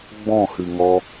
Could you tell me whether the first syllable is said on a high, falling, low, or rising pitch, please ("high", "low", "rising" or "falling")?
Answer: falling